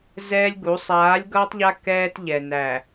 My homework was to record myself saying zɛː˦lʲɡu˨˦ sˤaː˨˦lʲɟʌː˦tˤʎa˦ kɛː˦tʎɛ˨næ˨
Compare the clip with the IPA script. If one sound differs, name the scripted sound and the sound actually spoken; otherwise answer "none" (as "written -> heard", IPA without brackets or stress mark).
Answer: ɟ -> ɡ